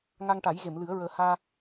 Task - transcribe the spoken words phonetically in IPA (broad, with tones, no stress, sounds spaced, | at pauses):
ŋ a˧ ŋ ʈ a˨˩˦ j ɣ e˨˩˨ m l ɨ˨˩˦ ə̯ ɹ əː˨˩˦ h aː˧